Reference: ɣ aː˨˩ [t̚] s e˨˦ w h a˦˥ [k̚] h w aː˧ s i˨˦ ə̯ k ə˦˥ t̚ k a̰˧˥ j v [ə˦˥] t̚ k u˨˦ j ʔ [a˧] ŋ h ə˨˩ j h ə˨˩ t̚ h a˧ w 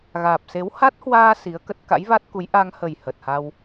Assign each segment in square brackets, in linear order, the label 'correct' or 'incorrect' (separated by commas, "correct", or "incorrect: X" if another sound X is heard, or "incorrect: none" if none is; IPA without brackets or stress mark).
incorrect: p̚, incorrect: t̚, incorrect: a˦˥, correct